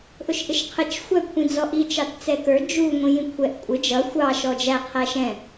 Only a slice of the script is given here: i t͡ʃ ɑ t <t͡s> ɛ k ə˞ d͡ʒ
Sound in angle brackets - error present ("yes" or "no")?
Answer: no